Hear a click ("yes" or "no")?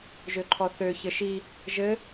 yes